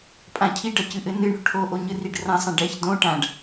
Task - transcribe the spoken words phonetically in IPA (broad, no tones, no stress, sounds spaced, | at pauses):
pʼ ã cʰ i ɖ ɐ c ɨ ʔ ɘ n ɨ ɳ o̤ ʈʰ o ʔ o ɲ ɨ r i ɖ r ã sˤ ã ɖ ɛ ç d õ ʈ ã ɖ